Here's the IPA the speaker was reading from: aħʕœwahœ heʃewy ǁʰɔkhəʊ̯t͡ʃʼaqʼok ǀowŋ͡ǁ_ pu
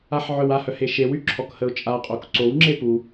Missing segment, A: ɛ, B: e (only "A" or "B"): B